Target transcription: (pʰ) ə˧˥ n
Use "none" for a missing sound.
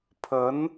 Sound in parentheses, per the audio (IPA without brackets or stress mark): pʰ